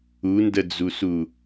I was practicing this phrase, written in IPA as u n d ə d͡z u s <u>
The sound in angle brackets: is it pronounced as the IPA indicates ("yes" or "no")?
yes